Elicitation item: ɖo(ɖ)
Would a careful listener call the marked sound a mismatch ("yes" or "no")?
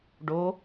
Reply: yes